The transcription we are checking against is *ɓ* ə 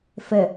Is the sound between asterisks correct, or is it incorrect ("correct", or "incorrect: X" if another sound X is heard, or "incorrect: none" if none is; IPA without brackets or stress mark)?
incorrect: f